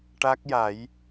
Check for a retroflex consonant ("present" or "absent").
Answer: present